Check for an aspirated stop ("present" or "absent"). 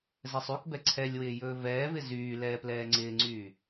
present